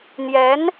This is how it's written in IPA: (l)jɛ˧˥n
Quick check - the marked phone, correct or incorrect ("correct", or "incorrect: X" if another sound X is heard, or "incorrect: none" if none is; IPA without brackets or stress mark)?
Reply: incorrect: n̪